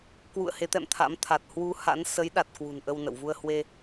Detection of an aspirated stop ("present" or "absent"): present